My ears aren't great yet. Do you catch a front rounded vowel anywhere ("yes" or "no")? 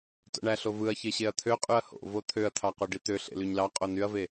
yes